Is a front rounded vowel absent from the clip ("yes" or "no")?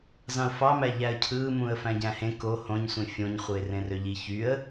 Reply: no